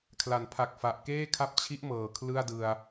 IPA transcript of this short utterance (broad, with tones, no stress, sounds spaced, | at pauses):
kʰ l a˩˦ n pʰ a˨˩ k̚ f a˨˩ ʔ k eː˥˩ kʰ a˦˥ p̚ t͡ɕʰ i˦˥ ʔ m ɤː˨˩ kʰ l ɯ˥˩ a̯ d ɯ˧ a̯